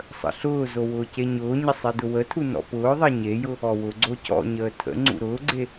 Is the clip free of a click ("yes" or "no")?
no